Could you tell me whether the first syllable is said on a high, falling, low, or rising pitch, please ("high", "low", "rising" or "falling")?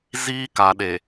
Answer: high